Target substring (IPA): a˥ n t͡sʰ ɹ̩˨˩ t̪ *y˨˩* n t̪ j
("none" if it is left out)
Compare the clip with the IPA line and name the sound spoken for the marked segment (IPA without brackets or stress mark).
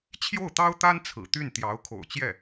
y˥˩